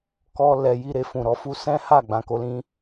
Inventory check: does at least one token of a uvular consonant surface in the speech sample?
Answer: no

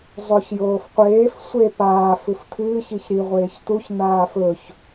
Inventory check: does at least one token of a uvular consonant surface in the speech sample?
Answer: yes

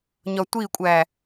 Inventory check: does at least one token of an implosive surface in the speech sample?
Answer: no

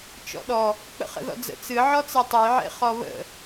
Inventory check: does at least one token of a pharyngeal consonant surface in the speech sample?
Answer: yes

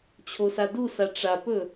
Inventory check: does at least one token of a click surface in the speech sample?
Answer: no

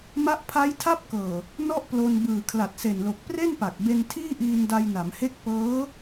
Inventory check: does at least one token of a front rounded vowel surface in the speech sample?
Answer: no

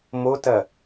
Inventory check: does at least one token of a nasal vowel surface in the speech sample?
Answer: no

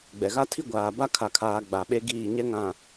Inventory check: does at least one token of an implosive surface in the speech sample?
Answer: yes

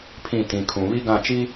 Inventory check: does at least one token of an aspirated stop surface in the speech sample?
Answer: yes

